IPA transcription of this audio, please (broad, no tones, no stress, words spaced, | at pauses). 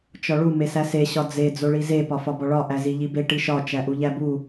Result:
t͡ʃɒɭu mesæse ɕɒd͡ze d͡zoɭize pɒfɒbɒɭɒ ʔæziʎibe ʈiʃɒ t͡ʃæʔuʎæbu